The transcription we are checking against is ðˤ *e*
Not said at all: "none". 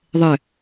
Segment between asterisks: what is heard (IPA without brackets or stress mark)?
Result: ɘ